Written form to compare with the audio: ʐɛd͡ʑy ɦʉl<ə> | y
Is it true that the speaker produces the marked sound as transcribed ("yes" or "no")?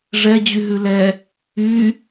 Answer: no